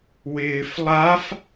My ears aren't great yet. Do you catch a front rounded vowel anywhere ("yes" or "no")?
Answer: no